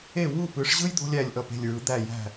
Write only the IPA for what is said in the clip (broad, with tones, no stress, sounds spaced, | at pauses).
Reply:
e˦˨ w u˦˨ p ɯ˨˦ ʂ ʑ ɯ˥ j d̪ o̤˥ lʲ æ˦˨ lʲ ʔ ʌ˦˨ p e̤˦˨ lʲ ɹ ɯ˨˦ d̪ æ˦˨ j æ̤˦˨